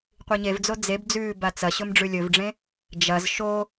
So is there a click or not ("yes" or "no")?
no